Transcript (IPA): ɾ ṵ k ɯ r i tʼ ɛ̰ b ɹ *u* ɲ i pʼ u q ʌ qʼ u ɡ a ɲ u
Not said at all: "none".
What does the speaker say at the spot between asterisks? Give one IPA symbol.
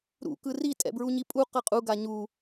u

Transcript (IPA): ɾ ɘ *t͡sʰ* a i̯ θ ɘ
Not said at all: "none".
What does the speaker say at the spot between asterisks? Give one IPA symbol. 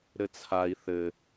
t͡sʰ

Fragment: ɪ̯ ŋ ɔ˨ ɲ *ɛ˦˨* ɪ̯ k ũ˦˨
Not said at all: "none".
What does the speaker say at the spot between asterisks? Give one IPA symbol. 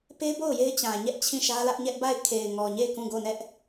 e˦˨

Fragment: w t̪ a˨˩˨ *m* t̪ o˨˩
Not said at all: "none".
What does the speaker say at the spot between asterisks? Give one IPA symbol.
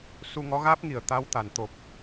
n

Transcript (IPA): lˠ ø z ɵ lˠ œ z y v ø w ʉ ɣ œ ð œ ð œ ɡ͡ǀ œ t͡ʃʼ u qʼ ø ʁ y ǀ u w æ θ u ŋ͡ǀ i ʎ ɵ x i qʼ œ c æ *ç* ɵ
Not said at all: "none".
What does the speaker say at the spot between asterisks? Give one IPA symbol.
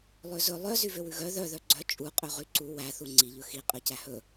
h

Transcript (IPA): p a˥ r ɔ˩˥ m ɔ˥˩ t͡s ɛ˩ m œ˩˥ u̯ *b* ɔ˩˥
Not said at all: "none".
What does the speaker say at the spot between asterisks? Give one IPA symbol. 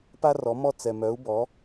b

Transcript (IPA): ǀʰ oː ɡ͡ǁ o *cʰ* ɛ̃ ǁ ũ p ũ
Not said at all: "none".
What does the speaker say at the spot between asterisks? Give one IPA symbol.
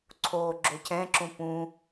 cʰ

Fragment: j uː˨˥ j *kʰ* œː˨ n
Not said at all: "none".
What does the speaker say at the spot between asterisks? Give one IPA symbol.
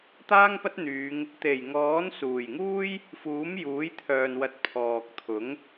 t̪ʰ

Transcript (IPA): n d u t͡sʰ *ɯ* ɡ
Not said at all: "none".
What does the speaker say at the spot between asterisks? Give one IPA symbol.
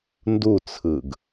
ɯ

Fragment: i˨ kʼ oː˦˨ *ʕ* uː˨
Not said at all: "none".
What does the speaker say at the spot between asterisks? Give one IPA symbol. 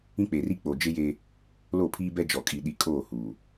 h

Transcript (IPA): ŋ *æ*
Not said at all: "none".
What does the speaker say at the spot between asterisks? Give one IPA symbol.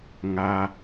a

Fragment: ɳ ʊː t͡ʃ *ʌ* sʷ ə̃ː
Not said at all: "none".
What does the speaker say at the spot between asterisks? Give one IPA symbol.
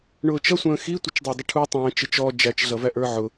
ʌ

